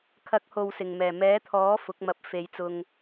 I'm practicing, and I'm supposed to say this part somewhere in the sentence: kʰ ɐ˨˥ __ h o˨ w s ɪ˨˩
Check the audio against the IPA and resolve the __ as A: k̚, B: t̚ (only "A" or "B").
A